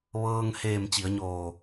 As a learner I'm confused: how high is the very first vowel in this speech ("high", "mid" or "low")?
mid